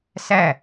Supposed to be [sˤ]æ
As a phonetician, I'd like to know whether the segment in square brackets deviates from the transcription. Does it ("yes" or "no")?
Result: yes